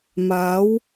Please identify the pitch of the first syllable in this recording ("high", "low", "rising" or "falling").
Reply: rising